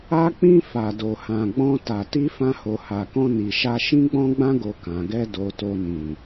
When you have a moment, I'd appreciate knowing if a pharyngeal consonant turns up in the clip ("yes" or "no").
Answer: no